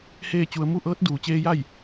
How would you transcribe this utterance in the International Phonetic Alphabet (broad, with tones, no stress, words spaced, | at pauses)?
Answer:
heː˥˨t͡ɕu˧ə̯ mu˥˨ʔɤː˧˥t̚ duː˩˧t͡ɕeː˧ ja˥˨j